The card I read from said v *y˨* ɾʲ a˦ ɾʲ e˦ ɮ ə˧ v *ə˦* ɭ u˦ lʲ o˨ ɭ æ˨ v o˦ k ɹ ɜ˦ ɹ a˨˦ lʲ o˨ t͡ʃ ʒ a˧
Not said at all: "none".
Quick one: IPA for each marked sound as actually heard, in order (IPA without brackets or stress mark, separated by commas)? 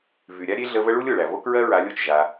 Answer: y˨, ə˦